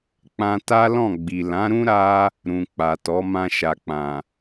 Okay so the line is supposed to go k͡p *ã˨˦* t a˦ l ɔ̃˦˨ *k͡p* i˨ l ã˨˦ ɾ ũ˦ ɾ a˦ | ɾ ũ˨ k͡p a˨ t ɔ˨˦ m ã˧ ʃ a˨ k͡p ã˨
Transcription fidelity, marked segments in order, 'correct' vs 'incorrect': incorrect, incorrect

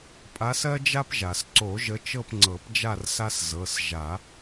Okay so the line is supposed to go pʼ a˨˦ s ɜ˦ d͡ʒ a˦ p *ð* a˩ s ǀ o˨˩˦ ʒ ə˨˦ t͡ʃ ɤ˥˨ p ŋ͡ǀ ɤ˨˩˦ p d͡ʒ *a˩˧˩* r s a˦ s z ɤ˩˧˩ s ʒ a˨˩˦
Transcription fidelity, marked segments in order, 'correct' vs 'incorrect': incorrect, incorrect

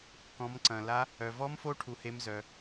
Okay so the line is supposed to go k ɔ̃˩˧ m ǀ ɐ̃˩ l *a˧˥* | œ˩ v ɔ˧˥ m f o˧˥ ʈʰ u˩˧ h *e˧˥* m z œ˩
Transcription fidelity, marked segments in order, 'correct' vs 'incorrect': correct, correct

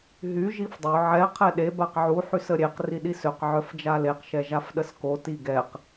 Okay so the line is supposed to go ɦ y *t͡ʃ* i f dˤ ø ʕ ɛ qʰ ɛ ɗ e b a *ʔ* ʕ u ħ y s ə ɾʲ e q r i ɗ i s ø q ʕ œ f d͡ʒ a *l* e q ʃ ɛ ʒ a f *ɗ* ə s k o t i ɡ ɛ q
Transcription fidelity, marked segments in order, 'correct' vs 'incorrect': incorrect, incorrect, correct, correct

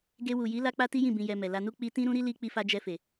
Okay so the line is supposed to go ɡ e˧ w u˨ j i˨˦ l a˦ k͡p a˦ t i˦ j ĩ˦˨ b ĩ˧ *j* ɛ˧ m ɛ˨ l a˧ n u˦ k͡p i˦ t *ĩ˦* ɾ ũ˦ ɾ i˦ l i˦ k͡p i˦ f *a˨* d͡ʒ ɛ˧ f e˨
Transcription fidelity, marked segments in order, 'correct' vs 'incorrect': correct, correct, incorrect

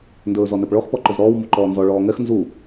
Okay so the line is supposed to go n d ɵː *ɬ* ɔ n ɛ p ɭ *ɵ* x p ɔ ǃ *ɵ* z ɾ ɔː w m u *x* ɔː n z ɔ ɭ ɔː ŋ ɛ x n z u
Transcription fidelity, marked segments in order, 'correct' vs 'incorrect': incorrect, incorrect, correct, incorrect

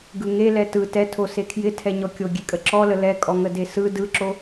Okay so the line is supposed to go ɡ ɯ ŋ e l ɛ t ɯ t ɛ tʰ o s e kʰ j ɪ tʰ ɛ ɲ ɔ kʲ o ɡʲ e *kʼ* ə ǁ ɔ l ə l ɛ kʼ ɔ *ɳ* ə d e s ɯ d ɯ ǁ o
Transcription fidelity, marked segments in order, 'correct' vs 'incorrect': correct, incorrect

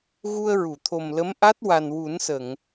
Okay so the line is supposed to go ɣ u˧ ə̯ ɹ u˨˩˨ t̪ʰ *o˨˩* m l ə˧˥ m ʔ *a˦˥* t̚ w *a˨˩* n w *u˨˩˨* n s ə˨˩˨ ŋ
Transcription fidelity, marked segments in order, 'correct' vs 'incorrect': correct, correct, correct, incorrect

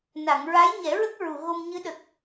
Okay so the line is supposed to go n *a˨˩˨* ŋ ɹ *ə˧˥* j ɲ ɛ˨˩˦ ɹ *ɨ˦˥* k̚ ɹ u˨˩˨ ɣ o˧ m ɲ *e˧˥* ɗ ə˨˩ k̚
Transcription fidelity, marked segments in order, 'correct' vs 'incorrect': correct, incorrect, incorrect, incorrect

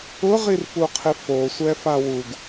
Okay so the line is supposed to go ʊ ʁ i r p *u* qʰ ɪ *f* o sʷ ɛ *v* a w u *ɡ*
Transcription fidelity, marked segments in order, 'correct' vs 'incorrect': correct, correct, incorrect, correct

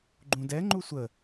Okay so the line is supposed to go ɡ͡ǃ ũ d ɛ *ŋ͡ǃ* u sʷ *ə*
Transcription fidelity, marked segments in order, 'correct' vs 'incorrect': correct, correct

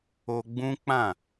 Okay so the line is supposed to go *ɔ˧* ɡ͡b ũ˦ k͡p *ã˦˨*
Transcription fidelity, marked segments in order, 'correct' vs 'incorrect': incorrect, correct

